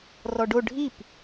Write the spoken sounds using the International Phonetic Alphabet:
rɔɖo ɖʱip

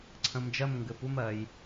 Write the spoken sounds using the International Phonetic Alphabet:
ǀʰə̃˧md͡ʒɜ˥˧m ŋɡɘ˨˥pu˥m ɜ˧j

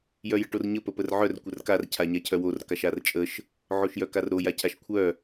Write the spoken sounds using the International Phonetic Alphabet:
jœjəʈorɲə pəpərʕœr kʷərkar cʰaɲacʰœwor kaʃart͡ʃʼəʃ | ʕoʃjœkarɾo jacʰaʃkʷʰœ

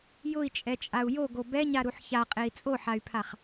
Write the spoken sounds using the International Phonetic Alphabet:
jʊi̯t͡ʃʼɛt͡ʃʼau̯ joɡo bɛɲaɾuħ çaqʼei̯ t͡sʼoħay̯pʰaχ

